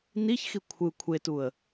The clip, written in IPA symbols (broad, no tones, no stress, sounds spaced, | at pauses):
n i ç x i kʷʰ ɯ kʷʰ e t u ə̯